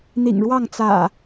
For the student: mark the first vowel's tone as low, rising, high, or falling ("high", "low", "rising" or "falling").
low